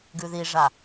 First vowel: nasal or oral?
oral